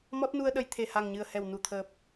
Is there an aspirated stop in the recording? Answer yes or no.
yes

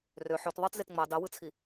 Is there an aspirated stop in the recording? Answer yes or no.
yes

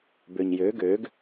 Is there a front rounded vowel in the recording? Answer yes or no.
yes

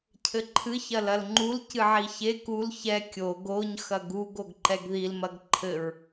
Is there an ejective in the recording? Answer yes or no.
no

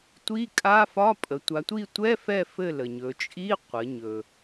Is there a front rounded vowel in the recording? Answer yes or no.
no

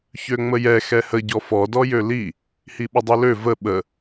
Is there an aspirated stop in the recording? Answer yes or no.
no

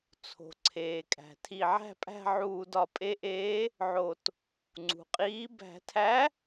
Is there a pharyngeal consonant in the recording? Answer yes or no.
yes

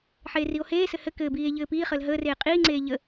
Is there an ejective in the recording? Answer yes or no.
yes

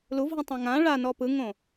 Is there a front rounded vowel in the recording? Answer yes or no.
no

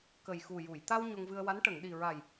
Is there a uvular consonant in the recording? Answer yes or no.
no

